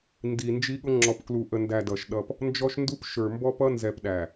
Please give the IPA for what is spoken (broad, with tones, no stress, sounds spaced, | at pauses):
n d i˨ n d͡ʒ i˦ ɠ ʊ˦ ŋ͡ǁ ɔ˨ p k l u˨ ʔ ə˨ n d æ˨ d ʌ˨ ʃ ɗ ʌ˦ p | n d͡ʒ ɔ˦ ʃ n d u˦ p ʃ ə˞˨ m b ɔ˦ p ʌ˦ n z ɛ˨ p ɗ æ˨